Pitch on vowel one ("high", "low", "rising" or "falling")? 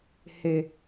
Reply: low